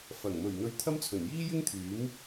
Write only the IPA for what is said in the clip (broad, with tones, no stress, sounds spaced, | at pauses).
f ɐ˨˩ ŋ m ɵ˨˩ ɥ n̪ ɵ˧ ɥ t̪ʰ ɐ˥ m t͡sʰ ɵ˨˩ n j iː˥ j ɪ˥ ŋ t̪ʰ yː˨˥ m